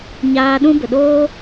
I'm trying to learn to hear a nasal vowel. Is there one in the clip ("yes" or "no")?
yes